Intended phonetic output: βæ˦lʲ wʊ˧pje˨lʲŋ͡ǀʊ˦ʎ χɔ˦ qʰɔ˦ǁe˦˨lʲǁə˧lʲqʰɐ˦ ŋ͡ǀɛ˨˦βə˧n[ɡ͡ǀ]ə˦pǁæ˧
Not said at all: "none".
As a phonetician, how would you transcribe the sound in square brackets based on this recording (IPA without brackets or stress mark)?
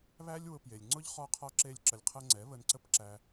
ǀ